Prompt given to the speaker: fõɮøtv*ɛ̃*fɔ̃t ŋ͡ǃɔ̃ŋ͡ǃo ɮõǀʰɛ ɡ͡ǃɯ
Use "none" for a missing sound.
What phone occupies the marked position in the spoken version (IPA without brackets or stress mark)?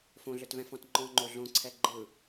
ɛ̃